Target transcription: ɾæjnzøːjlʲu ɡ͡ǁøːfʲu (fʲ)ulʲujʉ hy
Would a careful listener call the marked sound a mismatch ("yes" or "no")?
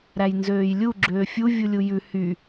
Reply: yes